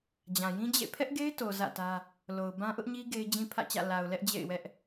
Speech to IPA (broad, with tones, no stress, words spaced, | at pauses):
d͡ʑã˨jĩ˦d͡ʑḛ˦˨ pʰɛ˦ʔɡe˦ɪ̯to˨ zä̰˦˨tä˦ | lo˨ʊ̯bã˦ ʔʊ˦ʔɲi˦ ɡe˦ɪ̯d͡ʑĩ˦pʰä̰˦˨t͡ɕä̰˦˨ la˨ʊ̯lɛ˦ʔ d͡ʑḛ˦˨ɪ̯wɛ˦ʔ